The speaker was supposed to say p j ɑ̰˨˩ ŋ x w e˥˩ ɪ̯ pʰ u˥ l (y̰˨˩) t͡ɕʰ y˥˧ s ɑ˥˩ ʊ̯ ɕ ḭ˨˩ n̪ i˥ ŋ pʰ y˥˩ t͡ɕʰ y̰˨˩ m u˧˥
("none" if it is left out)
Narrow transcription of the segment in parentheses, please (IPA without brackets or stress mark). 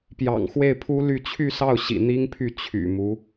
y˥˧